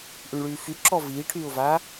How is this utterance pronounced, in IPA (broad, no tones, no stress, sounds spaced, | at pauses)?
ʔ y ɳ ɭ yː f y ǁ ɔ v iː ʈʰ yː ʊ̯ v aː